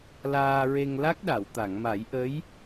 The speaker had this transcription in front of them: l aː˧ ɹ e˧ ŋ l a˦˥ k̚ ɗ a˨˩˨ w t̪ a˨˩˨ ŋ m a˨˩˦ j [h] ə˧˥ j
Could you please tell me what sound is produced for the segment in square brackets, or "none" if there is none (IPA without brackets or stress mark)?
ʔ